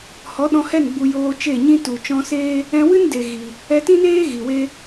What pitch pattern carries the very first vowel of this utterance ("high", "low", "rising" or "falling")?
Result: rising